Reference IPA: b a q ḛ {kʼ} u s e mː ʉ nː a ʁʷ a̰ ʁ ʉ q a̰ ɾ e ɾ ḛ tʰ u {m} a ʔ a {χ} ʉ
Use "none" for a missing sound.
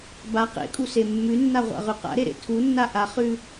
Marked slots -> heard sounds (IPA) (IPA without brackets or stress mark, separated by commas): kʼ, nː, χ